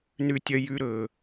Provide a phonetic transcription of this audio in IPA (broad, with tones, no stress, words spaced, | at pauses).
nʉ˧tʲœ˧jʉ˧ ɾɵ˩